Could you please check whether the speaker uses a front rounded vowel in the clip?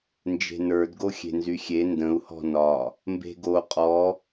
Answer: yes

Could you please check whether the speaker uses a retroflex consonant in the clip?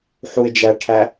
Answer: yes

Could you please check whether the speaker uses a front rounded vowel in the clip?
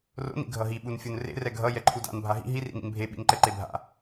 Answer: no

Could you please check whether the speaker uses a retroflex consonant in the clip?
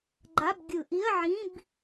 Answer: no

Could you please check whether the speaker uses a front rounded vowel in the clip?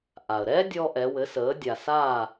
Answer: no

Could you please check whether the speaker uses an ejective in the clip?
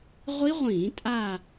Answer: yes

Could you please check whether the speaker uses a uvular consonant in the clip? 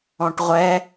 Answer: yes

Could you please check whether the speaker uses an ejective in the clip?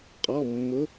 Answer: yes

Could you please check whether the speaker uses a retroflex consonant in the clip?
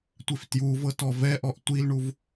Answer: yes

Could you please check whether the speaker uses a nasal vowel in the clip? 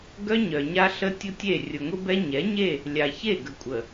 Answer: no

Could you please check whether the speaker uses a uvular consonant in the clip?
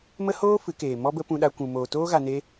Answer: no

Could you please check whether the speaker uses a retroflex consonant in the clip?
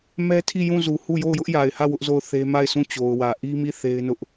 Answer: no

